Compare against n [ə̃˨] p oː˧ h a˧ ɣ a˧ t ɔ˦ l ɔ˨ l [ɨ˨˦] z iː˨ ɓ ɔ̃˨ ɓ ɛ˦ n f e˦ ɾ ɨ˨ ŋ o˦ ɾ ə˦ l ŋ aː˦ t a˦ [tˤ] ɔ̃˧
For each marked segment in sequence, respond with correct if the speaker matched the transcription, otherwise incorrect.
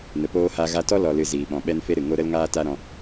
incorrect, incorrect, incorrect

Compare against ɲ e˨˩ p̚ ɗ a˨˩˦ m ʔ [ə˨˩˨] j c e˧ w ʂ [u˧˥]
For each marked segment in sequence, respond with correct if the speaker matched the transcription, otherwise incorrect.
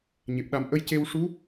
incorrect, correct

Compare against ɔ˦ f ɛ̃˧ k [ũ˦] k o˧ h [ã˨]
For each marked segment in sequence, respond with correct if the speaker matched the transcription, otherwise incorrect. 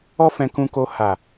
incorrect, incorrect

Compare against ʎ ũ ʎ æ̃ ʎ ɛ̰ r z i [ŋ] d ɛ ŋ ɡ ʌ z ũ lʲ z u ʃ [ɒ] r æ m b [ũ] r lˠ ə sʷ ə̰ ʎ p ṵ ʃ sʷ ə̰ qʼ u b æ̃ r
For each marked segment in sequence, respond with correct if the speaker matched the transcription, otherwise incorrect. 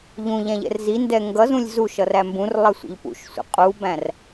incorrect, incorrect, correct

